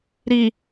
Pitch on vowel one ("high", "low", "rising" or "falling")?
low